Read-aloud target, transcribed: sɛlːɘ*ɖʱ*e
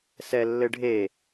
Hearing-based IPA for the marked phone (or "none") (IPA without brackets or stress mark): ɖʱ